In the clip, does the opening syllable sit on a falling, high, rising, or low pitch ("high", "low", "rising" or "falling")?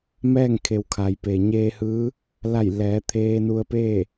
falling